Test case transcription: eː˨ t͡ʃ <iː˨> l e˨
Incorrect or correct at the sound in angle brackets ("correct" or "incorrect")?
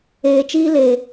incorrect